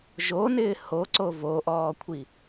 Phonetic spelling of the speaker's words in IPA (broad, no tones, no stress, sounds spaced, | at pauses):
ʒ o n ɪː h o ǀ o v o ʔ ɔː kʷʰ i